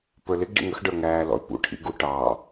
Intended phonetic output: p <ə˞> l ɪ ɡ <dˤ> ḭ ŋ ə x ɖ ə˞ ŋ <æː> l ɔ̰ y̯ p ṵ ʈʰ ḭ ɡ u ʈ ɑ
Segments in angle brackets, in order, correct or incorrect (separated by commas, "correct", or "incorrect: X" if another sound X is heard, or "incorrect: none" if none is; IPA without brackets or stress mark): correct, incorrect: ɖ, correct